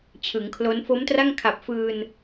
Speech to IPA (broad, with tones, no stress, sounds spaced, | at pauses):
t͡ɕʰ ɯ˩˦ ŋ kʰ l o˦˥ n f o˦˥ m t r a˥˩ ŋ kʰ a˨˩ p̚ f ɯː˧ n